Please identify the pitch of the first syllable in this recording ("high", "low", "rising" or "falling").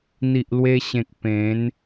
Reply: low